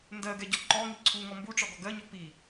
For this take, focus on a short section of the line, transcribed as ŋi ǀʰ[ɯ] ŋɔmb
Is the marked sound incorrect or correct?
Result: incorrect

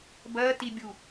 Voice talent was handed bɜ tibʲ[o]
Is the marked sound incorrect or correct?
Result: incorrect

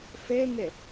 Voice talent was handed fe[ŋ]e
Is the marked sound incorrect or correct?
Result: correct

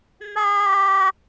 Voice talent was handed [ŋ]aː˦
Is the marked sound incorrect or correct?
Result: incorrect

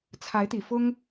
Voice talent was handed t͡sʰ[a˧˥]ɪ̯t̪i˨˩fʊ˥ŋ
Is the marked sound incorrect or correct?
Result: correct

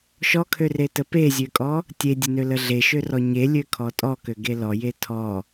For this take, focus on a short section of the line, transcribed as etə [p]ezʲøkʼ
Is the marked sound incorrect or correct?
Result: correct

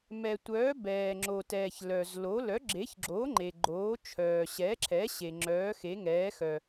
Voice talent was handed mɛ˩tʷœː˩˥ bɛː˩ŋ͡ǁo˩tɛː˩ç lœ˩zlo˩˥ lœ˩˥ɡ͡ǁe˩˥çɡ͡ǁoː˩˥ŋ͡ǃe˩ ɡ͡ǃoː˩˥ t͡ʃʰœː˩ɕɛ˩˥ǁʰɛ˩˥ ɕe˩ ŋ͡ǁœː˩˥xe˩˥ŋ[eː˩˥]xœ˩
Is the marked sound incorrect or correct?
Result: incorrect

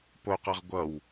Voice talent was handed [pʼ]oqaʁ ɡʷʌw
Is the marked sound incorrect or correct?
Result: incorrect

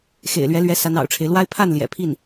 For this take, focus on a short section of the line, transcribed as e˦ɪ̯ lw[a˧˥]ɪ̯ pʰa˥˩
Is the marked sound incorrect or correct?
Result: incorrect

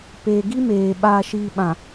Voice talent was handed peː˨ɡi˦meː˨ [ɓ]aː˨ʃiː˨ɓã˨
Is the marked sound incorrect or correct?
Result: correct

